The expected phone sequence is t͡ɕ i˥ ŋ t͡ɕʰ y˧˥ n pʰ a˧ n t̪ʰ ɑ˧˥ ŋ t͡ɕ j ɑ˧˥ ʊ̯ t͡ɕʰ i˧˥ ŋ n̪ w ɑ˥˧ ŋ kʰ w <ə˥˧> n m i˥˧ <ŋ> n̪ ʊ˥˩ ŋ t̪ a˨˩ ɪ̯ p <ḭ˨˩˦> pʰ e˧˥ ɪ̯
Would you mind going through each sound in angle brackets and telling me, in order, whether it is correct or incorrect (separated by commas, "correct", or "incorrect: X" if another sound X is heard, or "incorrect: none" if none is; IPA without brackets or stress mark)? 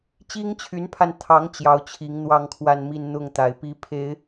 incorrect: a˥˧, incorrect: n, incorrect: i˥